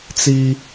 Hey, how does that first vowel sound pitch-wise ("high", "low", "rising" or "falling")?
high